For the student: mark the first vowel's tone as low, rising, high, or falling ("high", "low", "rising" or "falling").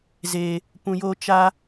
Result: low